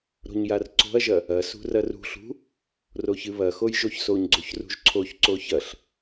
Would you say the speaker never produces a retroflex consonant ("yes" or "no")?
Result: yes